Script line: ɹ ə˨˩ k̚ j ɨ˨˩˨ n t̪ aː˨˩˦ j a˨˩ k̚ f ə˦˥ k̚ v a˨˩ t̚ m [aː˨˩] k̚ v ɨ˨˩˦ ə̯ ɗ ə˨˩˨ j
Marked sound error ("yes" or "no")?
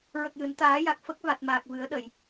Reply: no